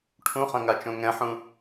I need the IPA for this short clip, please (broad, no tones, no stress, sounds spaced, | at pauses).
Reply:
ʈʰ ũ χ ɐ̃ ŋ a t͡ʃ õ ŋ ɛ̃ ħ ũ